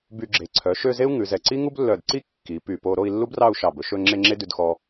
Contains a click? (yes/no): yes